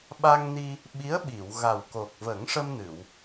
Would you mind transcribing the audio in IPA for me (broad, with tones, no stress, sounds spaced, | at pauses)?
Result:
ɓ a˧ ŋ n i˧ | ɓ i˧˥ ə̯ ɓ i˨˩˨ w ɣ a˨˩ w k o˨˩ k̚ v ə˨˩˦ ŋ ʂ ə˧ m n ɨ˨˩˨ w